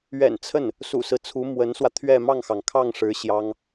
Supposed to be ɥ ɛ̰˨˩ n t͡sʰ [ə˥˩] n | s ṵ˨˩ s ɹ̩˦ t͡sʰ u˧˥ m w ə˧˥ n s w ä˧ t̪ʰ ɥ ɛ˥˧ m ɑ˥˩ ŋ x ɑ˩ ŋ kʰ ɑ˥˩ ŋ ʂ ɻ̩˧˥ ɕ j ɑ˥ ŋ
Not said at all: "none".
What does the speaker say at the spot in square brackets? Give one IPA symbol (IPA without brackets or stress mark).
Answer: ə˥˩